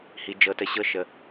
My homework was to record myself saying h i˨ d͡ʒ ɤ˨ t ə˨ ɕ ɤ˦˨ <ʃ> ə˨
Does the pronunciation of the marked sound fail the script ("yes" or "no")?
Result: no